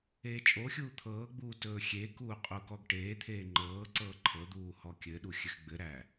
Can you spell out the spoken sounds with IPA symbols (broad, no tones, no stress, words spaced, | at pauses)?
eːt͡ʃʼoxʲuː t̪ʰɤːɡ͡buː tɵːxʲekuː qʼukɔɡʈeːt̪ʰeː ŋ͡ǃɤː ǀɤːǃʰɤd̪uː hɔkʲɘɗu xʲɘxɡ͡bɘɾæ